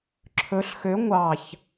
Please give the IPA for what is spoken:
ǁʰɵɬ xø ŋʷɑç

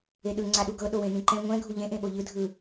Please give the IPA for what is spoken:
eɗɯ ŋ͡ǀaɗuɡɤ ɗowẽnĩǃɛ̃ ŋʷɛ̃ ɡʱuʎẽ ʔẽɓoʎɯ dʱɯ

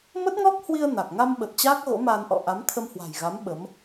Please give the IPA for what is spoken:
mə˦˥t̚ŋɔ˦˥k̚ hwi˧ə̯ na˨˩k̚ ŋa˧mɓə˨˩t̚ t͡ɕaː˦˥k̚ɣo̰˧˥maː˧nʔɔ̰˧˨ ʔa˨˦mt̪ʰə˧mhwa̤˨˩jɣa˨˦m ɓə˨˦m

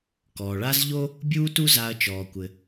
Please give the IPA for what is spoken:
kɔː˩ɭa˥z ʎo˥ | bʲuː˥tu˥ za˧ɐ̯t͡ʃɔː˩kʷɘ˩

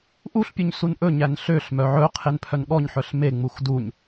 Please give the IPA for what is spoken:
ʔuɬpʲuɲ sunʔɵɲæn ɬøɬmœ ʕɵ qʰenpʰœnɠɔɲħœɬ meŋ͡mux duɲ

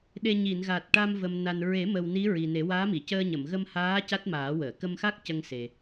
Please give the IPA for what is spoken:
ɗe˧ ɲi˨˩˨nɣa˨˩t̚ʈa˧mvə˨˩m na˨˩n ɹe˨˩˦mə˨˩w ni˧˥ ɹi˨˩ne˨˩˦ waː˧˥mi˨˩˨cəː˧ ɲə˨˩˨mɣə˧mhaː˧˥ ca˦˥t̚maː˨˩˦wəː˨˩˨ kə˧mxa˦˥k̚ cə˧ŋse˨˩

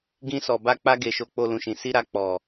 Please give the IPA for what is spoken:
ɡĩ˧sɔ˨ ba˧k͡pa˧ɡe˨ ʃo˧k͡po˧lũ˨ʃĩ˨ si˧ɾa˧ k͡pɔ˨

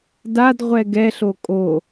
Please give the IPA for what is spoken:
dadʁʷɛ ɡɛ ɬokʼo

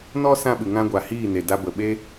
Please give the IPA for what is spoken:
nɔ˦ sã˦ɓɨ˨ŋã˦ɡʷa˨ hiː˦˨ne˨ da˧bə˨ɓe˦

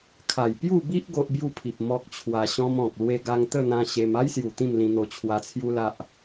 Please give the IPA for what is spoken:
kʰa˨˩j pju˥˧bi˦ʔ ɡo˦ʔbju˥˧pʰi˨p̚ mɔ˦k̚t͡ɕʰwa˧ɕɔ̃˦mɔ̃˨k̚ lwe˧ɡa˧ŋt̪ə˥˧n̪ã˧ ɕe˧m a˦jsju˨˩ t̪ĩ˥˧mlĩ˧n̪o˧ t͡ɕʰwa˧t͡sʰju˦la˦ʔ

